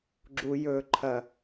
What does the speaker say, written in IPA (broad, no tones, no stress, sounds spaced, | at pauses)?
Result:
ɡ͡ǁ u j ɵ ǃʰ ɐ